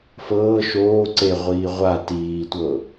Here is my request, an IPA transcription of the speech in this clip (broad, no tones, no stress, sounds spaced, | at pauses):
f ɤː ʃ oː ǀ e ʁʷ iː ʁʷ a t iː tʷ ɤ